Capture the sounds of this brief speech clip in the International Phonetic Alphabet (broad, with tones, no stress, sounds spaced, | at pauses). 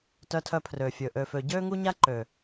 t œ˧ tʰ œ˧ pʰ r ø˨ fʲ ɵ˨ ʔ ø˨ f ø˨ ɟ øː˦ ŋ u˦ ɲ a˦ ǃ ø˨